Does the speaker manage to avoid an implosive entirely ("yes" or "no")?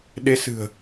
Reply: no